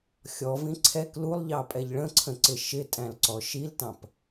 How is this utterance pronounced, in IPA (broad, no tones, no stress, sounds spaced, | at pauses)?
xʲ ɔ v ĩ ǀʰ ɛ k l u lˠ ʎ ɑ pʼ ɛ ʎ ɭ ə̃ ǀʰ ə̃ ǀ ɪ ʃ ɪ tʼ æ̃ l ǀ ɔ ʃ i l t ɑ̃ p